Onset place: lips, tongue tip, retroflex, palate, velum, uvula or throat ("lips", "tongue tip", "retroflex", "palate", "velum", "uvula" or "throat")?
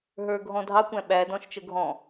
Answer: throat